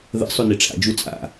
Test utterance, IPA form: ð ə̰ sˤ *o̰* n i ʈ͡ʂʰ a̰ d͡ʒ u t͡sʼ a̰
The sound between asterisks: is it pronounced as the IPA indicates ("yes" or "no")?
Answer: no